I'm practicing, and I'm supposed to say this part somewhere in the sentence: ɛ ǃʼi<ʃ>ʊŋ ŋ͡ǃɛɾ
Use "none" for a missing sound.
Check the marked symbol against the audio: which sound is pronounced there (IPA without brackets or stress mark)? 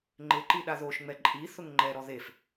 θ